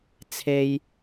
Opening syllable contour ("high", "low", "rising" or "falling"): high